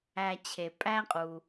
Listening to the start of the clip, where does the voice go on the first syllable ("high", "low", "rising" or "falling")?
low